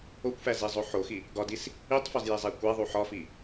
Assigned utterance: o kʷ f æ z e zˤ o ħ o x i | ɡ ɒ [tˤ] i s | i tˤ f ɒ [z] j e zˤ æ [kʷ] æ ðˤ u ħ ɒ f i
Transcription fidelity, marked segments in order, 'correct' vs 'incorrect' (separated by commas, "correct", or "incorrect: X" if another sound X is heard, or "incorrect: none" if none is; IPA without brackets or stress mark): incorrect: d, correct, correct